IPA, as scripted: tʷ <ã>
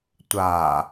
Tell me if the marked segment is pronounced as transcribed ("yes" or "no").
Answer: no